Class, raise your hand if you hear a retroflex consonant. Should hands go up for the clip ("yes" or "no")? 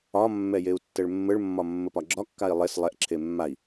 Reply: yes